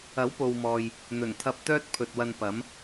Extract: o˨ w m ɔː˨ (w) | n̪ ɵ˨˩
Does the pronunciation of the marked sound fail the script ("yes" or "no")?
yes